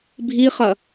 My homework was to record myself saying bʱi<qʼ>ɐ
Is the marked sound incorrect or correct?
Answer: incorrect